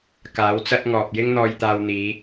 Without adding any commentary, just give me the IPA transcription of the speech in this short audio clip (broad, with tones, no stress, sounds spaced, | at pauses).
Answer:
k aː˨˥ w t͡s ɐ˥ t̚ ŋ ɔː˨ p̚ j ɪ˥ ŋ n̪ ɔː˧ j t̪ aː˧ w n̪ iː˨˧